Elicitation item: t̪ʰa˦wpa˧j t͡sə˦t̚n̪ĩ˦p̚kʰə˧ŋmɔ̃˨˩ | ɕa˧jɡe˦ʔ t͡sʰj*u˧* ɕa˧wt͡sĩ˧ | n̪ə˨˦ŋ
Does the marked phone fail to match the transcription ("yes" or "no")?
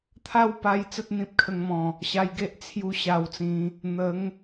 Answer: no